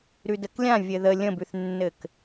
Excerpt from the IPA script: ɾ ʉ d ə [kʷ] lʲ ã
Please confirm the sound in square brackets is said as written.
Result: no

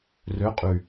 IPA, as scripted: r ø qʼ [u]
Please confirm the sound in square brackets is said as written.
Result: no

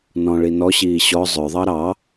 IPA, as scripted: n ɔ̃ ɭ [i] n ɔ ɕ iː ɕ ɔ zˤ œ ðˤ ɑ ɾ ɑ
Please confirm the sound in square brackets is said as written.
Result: yes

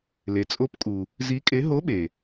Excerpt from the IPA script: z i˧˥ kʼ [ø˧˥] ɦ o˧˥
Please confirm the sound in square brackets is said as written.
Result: no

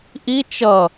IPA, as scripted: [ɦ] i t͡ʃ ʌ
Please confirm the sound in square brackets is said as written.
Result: no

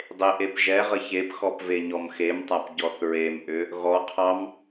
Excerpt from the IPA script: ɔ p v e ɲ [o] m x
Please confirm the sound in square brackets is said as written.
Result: no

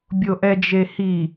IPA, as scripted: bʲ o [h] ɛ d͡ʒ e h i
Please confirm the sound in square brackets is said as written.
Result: no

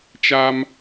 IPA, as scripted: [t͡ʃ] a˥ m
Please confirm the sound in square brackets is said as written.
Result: yes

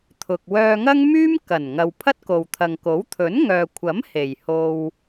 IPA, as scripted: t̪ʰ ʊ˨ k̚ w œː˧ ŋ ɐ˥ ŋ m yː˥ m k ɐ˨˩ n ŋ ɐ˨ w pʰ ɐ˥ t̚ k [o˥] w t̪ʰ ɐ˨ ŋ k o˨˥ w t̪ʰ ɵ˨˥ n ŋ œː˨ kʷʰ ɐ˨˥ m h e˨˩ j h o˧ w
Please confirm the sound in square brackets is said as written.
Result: no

